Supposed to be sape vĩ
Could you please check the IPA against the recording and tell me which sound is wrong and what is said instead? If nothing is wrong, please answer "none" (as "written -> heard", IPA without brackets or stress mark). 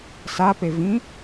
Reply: none